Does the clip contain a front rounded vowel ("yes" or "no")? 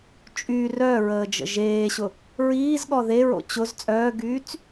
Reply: yes